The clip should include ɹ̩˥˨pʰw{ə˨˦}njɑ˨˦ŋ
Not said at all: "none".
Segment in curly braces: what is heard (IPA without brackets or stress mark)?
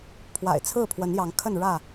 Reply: ə˨˦